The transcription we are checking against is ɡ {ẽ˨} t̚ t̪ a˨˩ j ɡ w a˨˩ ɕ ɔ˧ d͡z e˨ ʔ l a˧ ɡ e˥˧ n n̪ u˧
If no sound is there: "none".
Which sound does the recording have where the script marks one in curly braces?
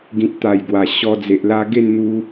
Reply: ĩ˨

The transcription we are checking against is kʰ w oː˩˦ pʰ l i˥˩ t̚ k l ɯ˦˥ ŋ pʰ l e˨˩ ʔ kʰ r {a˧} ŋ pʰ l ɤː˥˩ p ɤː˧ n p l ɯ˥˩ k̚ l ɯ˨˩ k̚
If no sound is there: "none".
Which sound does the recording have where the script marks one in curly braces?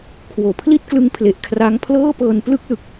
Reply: a˦˥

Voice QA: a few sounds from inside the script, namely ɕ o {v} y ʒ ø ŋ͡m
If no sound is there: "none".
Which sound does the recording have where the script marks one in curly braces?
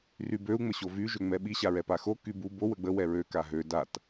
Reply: v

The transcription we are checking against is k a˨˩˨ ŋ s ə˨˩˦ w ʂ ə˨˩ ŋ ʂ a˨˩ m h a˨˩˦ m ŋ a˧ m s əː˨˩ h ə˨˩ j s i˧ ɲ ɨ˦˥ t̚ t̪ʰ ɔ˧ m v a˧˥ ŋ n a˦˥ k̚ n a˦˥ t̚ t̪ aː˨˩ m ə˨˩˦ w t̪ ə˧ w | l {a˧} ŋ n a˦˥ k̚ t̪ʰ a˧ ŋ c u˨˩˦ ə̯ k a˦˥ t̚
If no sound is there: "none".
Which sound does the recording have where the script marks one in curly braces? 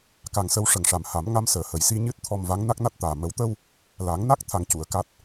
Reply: a˨˩˦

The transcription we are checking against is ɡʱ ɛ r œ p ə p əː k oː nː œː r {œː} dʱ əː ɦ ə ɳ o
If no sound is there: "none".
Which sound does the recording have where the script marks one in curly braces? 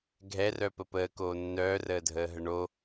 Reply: əː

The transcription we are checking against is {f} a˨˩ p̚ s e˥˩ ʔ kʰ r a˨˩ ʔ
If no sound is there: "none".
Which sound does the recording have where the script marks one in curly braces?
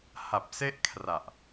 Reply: h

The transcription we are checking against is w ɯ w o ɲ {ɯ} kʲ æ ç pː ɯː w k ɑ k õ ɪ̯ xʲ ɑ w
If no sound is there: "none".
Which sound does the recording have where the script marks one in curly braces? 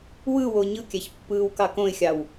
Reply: ɯ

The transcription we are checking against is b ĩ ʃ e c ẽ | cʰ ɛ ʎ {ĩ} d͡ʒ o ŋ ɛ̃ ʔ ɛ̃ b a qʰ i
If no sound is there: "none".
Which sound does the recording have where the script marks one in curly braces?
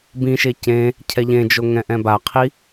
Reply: ẽ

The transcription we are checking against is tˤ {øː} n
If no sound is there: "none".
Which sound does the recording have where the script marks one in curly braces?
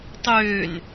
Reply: øː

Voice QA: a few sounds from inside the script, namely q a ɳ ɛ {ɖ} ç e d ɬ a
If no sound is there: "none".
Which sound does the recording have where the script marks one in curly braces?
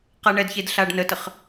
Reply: d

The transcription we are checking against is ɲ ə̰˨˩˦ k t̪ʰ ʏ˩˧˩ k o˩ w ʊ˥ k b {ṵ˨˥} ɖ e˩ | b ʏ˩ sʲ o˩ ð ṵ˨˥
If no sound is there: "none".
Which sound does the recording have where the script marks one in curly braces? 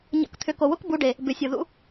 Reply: u˨˥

